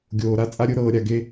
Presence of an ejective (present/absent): present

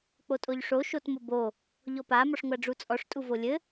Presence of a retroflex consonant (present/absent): present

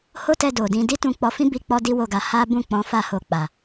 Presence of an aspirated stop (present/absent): absent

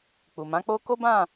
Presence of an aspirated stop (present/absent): absent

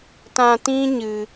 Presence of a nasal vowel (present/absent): present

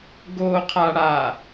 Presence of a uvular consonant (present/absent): present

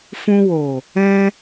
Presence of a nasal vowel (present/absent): present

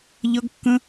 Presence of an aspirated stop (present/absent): absent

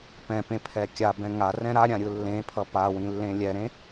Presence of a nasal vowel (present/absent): present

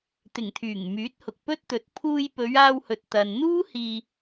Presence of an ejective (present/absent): absent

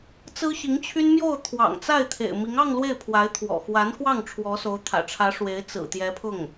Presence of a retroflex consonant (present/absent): present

